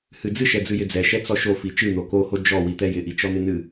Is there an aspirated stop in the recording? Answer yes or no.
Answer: no